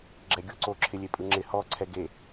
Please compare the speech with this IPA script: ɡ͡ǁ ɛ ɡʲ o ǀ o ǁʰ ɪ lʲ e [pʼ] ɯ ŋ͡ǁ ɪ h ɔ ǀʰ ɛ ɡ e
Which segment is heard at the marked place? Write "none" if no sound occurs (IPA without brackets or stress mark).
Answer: pʼ